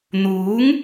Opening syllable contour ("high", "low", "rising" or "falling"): rising